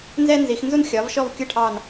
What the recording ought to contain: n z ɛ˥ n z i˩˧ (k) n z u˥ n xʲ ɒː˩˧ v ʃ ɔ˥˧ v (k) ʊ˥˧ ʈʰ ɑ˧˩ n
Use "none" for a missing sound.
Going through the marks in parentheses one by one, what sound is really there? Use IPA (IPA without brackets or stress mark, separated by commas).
x, kʲ